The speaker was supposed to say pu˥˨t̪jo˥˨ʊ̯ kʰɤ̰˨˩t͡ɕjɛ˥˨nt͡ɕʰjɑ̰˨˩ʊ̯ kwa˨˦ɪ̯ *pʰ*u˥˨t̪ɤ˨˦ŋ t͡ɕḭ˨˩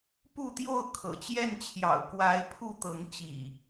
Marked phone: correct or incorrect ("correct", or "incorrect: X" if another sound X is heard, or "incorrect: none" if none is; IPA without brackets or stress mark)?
correct